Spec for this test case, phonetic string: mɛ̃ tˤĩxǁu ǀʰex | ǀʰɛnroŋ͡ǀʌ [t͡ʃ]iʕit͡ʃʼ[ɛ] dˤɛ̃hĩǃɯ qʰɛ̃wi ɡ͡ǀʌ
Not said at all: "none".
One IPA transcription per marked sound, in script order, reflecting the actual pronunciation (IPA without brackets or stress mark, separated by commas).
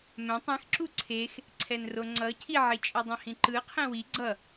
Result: cʰ, ɛ